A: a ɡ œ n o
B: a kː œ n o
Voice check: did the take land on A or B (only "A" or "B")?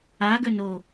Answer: A